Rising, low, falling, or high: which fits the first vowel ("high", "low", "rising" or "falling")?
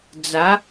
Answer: rising